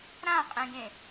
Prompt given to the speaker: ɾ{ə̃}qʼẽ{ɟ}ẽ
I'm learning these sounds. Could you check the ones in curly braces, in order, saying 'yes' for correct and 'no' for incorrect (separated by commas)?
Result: no, no